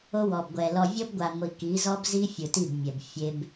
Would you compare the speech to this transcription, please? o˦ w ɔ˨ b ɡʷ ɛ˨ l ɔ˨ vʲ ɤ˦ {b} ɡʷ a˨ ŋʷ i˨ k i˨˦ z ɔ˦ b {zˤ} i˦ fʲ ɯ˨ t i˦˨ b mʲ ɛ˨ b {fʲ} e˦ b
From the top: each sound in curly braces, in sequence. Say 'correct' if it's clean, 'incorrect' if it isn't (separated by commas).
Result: correct, incorrect, correct